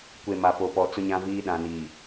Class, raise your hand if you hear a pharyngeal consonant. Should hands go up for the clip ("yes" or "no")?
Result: no